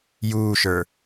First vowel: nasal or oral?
oral